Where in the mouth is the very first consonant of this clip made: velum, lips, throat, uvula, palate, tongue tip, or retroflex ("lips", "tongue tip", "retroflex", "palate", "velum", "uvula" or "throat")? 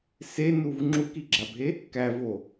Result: tongue tip